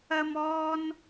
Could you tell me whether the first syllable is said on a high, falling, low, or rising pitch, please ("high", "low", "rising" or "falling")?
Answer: high